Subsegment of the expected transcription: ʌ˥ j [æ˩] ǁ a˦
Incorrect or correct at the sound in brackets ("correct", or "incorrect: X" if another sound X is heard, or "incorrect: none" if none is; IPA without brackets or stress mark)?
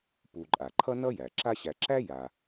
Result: correct